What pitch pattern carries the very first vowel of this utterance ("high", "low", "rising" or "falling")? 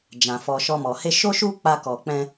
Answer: low